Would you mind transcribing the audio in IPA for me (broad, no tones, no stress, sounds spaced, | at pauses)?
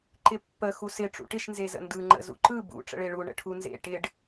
ǃ ɪ pː ə x u s ɪ ʈ͡ʂ ṵ ʈ ɪ ʃ n z e z ə̰ n d ɯ ŋ͡ǃ ə̰ z ṵ ǃ ɯ b ṵ ʈ͡ʂ ə̰ ɭ e ɭ u ɳ ə̰ ʈʰ u n z ḛ ʈ ɪ ɖ